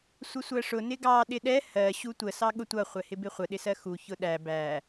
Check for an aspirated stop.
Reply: absent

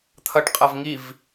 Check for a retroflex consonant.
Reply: present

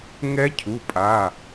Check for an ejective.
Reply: present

